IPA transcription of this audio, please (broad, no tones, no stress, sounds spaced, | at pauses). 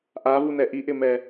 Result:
ʔ a v u n ɛ ʔ i ʔ ɪ m ɛ